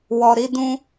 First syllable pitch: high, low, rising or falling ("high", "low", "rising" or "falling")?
low